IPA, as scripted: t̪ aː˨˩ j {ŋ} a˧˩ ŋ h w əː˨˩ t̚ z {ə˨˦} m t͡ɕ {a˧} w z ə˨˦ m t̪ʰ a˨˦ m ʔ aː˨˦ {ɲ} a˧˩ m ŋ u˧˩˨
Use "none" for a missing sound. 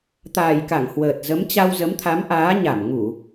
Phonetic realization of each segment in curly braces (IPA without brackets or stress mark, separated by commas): k, ə˨˦, a˧, ɲ